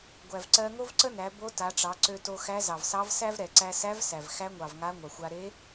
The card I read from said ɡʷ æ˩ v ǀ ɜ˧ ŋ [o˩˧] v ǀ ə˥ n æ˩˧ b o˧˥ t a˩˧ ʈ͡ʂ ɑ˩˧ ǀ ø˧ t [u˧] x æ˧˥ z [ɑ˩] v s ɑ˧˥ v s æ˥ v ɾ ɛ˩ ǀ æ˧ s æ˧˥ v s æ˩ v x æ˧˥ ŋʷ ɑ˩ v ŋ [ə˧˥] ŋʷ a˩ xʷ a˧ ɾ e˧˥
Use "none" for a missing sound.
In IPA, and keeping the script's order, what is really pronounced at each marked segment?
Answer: o˥, o˧, ɑ˩, a˧˥

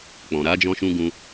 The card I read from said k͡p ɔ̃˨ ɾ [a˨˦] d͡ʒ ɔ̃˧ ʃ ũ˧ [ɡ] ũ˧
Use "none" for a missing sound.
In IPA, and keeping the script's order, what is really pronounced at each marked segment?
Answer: a˨˦, ɡ

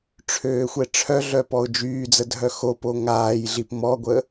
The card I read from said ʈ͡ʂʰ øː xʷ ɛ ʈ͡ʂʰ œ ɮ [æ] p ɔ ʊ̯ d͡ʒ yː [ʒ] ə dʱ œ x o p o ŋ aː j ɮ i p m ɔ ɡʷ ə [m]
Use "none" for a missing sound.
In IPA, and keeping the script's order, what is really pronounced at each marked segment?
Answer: œ, d͡z, none

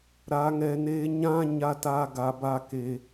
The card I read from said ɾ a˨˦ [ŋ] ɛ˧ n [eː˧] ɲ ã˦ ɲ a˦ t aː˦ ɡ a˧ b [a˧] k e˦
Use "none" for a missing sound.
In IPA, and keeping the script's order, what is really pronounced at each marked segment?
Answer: ŋ, eː˦, a˦

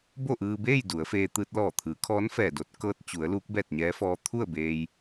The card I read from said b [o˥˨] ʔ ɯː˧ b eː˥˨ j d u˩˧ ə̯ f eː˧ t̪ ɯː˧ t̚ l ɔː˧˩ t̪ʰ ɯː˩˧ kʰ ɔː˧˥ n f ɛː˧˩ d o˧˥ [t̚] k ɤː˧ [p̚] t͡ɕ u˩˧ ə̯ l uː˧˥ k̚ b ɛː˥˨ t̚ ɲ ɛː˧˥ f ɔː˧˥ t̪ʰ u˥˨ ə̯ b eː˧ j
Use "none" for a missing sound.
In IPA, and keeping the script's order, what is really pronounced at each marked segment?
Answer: o˥˨, t̚, t̚

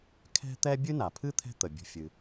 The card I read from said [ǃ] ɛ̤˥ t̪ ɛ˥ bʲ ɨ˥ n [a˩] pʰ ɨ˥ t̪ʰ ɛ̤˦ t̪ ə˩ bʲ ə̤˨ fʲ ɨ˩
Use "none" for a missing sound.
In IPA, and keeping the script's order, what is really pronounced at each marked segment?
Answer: kʰ, a˩

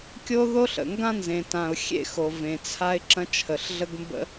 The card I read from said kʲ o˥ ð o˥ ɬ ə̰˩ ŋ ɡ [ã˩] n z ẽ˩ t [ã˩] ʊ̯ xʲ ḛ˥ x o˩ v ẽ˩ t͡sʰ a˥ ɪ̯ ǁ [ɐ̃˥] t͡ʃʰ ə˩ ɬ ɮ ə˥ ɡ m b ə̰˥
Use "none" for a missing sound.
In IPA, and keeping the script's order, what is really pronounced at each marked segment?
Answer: ã˥, ã˩, ɐ̃˥

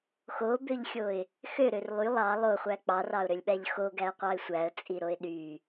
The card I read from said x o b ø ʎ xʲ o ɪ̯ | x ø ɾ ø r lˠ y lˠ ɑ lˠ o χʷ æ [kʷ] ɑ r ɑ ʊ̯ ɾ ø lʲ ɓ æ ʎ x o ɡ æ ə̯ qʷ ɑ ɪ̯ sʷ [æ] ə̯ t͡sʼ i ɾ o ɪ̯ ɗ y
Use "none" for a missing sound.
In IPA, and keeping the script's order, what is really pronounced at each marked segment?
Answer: k͡p, æ

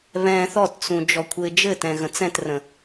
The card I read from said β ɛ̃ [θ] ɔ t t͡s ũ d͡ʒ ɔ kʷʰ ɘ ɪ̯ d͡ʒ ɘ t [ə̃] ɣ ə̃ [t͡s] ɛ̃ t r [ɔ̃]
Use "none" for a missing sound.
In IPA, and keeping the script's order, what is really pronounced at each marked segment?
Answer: θ, ɛ̃, t͡s, ə̃

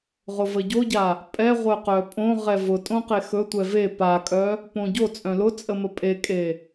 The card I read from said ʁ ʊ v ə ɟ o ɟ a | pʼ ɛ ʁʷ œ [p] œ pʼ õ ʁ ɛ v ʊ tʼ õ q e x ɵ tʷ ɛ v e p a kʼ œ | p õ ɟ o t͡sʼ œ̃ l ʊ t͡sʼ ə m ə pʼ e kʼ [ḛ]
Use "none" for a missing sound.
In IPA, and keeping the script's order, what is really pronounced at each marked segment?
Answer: q, e

